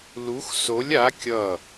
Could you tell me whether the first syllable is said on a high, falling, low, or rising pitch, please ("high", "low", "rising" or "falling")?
rising